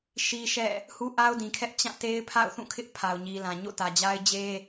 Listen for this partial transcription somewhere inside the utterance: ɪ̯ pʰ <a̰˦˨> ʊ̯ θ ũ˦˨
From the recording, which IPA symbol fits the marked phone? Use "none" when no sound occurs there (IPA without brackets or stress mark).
a̰˦˨